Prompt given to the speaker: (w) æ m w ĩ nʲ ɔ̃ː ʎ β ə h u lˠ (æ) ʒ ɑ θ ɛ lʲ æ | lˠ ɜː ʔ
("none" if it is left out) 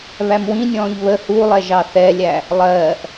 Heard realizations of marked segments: β, ɛ

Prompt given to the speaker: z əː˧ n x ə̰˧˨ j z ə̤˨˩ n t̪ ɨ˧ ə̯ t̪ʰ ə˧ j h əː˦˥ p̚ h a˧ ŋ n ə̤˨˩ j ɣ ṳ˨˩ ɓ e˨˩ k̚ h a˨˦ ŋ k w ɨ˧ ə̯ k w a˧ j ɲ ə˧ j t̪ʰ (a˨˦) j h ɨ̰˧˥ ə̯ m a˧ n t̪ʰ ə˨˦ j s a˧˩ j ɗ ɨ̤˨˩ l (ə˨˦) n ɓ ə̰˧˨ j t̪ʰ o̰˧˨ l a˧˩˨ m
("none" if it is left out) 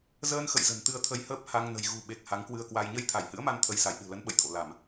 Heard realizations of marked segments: a˧˩, ə˨˦

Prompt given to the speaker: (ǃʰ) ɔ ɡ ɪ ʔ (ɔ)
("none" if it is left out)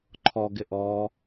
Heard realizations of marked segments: ǃʰ, ɔ

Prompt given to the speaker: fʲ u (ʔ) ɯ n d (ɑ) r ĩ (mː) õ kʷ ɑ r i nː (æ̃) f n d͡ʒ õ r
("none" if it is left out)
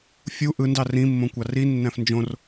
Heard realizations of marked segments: ʔ, ɑ, mː, æ̃

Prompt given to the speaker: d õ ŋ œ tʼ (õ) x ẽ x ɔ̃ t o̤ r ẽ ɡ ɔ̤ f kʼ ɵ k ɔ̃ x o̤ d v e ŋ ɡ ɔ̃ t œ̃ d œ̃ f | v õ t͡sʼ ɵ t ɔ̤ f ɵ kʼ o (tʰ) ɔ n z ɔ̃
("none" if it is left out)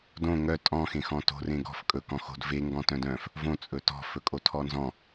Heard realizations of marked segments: ɔ̃, tʰ

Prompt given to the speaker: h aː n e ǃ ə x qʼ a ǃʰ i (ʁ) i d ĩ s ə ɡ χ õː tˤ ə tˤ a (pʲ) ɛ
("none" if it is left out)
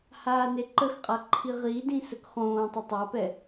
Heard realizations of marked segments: ʁ, p

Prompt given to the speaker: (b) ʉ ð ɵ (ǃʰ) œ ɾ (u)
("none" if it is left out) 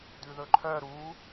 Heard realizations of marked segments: d, ǃʰ, u

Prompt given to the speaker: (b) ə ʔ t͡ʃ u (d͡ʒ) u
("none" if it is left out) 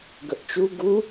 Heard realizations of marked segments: ɡ, ɡ

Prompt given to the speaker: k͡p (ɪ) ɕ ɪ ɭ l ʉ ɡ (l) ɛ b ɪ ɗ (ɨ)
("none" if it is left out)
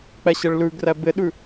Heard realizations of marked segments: ɛ, r, ʉ

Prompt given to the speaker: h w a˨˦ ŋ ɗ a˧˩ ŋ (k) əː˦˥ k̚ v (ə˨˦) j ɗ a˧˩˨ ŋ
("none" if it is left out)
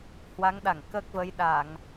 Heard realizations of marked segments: k, ə˨˦

